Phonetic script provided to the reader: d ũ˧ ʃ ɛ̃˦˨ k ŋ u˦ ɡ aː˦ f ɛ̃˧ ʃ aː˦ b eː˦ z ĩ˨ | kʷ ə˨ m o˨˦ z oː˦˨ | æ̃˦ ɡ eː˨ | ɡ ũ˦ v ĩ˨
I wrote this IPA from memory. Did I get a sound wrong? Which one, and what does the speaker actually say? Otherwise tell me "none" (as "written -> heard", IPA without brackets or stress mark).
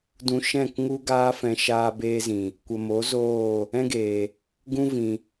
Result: æ̃˦ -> ɛ̃˦